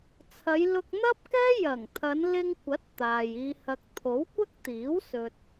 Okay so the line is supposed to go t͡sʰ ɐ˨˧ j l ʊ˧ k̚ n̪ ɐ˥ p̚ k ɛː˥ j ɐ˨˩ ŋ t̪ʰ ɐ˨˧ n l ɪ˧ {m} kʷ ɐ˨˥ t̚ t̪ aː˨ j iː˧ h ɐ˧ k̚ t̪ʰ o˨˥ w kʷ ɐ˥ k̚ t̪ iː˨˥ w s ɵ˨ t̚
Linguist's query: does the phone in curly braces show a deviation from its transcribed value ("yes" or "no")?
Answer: yes